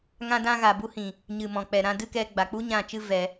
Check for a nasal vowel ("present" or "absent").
present